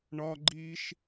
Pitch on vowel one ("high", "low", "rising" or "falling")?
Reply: high